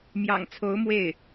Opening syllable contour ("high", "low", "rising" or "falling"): low